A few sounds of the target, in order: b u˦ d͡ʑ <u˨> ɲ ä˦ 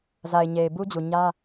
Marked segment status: correct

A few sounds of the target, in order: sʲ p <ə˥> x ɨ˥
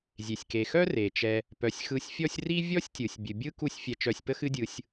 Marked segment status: correct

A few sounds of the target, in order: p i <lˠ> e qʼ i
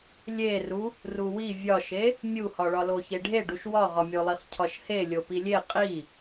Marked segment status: incorrect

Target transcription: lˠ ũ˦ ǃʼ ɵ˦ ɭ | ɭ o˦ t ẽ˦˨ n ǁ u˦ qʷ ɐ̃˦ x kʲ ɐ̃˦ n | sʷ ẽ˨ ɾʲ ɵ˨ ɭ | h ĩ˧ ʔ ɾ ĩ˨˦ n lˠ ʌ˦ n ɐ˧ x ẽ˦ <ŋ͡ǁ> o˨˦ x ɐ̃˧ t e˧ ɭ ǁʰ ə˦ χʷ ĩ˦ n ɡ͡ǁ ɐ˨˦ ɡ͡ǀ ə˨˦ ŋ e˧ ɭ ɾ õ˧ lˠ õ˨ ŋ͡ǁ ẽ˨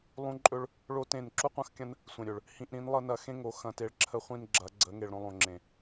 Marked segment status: incorrect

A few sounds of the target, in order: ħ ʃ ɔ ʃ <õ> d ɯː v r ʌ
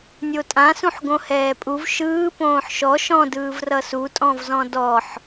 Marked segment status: incorrect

